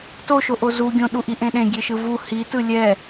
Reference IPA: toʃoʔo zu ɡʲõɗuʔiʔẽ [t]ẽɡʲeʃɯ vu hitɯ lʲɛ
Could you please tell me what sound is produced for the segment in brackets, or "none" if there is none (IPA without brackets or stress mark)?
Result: ɗ